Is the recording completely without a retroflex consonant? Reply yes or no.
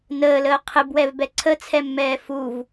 yes